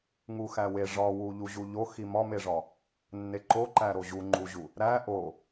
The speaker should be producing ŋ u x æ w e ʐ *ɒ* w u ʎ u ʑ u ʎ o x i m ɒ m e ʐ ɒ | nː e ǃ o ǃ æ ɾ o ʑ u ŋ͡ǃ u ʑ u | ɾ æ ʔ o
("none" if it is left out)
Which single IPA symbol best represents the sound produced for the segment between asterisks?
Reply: ɒ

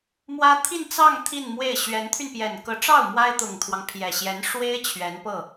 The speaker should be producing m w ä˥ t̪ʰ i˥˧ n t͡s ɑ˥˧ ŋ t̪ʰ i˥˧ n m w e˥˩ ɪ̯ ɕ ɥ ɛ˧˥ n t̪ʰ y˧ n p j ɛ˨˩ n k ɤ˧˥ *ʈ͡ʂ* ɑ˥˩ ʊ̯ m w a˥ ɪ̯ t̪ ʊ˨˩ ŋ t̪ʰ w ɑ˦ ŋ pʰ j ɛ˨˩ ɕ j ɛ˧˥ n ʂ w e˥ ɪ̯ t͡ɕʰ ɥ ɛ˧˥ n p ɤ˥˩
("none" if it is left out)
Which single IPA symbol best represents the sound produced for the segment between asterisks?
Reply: ʈ͡ʂ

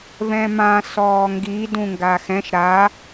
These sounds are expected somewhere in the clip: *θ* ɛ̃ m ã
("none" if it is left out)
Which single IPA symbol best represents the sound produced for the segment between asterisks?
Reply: v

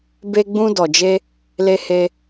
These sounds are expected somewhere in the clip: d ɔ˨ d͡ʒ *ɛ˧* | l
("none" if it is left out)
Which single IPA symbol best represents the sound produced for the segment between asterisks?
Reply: e˧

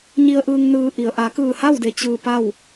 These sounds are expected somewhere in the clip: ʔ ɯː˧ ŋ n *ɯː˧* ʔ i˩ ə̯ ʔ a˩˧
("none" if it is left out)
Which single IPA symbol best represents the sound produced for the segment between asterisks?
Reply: ɯː˧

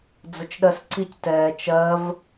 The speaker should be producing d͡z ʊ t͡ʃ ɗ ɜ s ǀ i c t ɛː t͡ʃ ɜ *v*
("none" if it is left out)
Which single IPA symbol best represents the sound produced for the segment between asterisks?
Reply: v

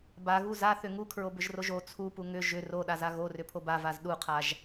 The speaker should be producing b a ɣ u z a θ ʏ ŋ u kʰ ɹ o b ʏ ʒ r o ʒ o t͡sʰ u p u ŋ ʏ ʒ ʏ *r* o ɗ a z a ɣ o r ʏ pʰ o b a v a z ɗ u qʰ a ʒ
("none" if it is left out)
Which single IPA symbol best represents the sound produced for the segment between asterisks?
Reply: r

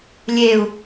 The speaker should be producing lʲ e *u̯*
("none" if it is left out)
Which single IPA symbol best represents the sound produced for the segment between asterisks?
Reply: u̯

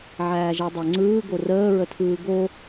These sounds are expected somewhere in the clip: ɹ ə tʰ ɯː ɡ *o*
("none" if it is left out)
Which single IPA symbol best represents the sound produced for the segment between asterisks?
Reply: o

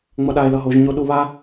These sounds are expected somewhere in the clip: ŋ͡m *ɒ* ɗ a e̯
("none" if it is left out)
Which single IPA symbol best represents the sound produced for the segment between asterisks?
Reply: ʌ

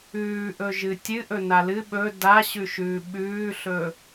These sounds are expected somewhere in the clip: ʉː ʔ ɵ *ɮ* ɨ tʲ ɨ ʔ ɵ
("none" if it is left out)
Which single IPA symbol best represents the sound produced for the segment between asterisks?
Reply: ʒ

